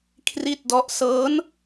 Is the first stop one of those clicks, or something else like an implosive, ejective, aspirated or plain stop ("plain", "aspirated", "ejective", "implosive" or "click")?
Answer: aspirated